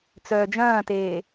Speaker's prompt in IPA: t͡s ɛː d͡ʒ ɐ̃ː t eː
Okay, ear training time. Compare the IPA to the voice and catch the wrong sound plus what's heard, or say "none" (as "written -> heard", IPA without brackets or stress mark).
ɛː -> œː